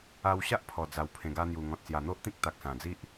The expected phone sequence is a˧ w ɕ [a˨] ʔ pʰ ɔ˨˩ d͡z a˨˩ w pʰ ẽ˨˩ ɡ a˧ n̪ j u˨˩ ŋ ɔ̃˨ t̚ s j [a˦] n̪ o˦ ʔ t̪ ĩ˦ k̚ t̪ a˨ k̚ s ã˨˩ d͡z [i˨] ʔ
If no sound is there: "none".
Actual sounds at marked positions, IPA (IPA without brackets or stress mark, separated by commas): a˦, a˨˩, i˦